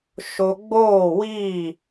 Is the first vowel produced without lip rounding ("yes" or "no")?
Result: no